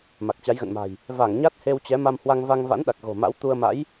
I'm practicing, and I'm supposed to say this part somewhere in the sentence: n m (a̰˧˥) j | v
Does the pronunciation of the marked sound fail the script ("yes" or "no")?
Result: yes